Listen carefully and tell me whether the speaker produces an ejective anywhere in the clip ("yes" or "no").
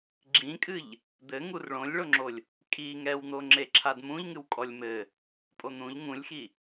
yes